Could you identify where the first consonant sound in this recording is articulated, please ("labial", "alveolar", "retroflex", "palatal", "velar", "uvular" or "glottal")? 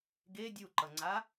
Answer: velar